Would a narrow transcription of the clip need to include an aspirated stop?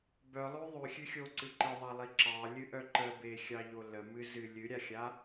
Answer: no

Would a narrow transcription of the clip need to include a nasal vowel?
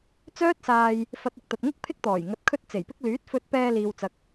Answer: no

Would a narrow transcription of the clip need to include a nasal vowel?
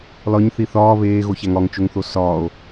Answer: no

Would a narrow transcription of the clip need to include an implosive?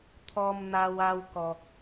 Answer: no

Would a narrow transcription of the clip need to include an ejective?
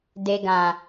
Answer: no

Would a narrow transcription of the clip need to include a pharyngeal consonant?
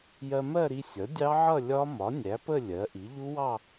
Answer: yes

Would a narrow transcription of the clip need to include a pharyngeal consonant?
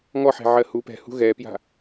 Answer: yes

